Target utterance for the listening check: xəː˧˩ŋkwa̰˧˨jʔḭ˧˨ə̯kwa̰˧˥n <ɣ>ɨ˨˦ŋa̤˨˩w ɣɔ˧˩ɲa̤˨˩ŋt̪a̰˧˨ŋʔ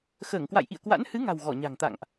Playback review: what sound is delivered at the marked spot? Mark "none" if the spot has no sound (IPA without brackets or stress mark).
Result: h